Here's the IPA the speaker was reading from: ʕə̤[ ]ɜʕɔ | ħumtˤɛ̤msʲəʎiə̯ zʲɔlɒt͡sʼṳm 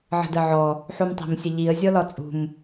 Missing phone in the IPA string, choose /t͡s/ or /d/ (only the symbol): d